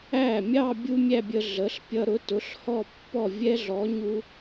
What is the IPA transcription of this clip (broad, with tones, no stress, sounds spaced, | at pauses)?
æ˥˩ mʲ ɑ˥˧ bʲ u˥ mʲ æ˥˧ bʲ ə˧ ɮ ə˩˥ ɬ pʲ ʌ˧ ɾ ʊ˩˥ t ʊ˩˥ ɬ h ɔ˥˩ pː ɔ˥˩ vʲ ɛ˥ ɮ ɔ˩˥ ɲ u˧